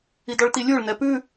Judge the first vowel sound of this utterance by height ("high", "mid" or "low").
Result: high